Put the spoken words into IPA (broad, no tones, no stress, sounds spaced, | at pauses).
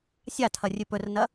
sʲ a tʰ ɐ rʲ ʉ p ɵ r n ɐ